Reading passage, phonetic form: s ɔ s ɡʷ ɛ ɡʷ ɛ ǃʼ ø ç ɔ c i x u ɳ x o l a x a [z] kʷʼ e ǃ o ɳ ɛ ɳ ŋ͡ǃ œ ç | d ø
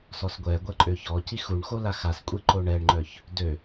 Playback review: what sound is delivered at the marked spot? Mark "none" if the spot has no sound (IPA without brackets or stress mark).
s